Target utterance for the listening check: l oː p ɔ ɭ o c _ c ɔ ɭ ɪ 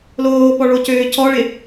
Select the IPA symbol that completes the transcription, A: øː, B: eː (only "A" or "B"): A